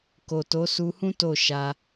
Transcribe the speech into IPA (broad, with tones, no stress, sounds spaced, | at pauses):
k o˨ t o˨˦ s u˧ h ũ˦ t o˦˨ ʃ a˧